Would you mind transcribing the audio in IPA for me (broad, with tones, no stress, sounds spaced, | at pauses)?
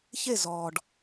ç e˦˨ z ɔː˨ ɖ